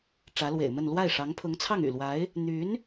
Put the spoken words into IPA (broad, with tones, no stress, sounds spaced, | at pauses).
ʈ͡ʂ ä˧˥ l w ḛ˨˩ ɪ̯ m ə˥˧ n l w a˥˩ ɪ̯ ʂ ɑ˧˥ ŋ pʰ ʊ˧˥ ŋ t͡sʰ ɑ˥˩ ŋ y̰˨˩ l w a˧˥ ɪ̯ | n̪ y˧˥ n